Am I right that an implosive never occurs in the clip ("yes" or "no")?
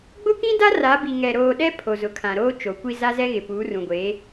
no